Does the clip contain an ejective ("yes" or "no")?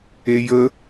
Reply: no